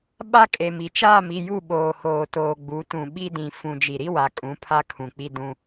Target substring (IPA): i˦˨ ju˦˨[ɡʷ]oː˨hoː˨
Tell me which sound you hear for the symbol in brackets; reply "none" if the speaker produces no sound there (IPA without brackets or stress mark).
ɓ